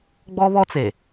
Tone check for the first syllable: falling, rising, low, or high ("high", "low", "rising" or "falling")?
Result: high